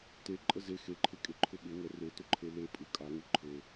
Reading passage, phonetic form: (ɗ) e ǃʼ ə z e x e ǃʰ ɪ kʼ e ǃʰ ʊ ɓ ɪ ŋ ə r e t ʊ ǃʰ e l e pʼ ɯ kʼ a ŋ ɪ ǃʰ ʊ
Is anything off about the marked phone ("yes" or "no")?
yes